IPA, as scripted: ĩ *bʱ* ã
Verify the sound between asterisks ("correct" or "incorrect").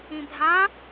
correct